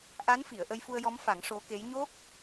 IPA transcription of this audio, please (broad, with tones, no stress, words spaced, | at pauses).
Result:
ʔa˧˥nfi˨˩˨ə̯ ʔə˧jfu˧ə̯jɔ˧˥mfa˨˩˦ŋ ʂo˧˥ke˧˥j ɲo˦˥k̚